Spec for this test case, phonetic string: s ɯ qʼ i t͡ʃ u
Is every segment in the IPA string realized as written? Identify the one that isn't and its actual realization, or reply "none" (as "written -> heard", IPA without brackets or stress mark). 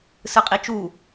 none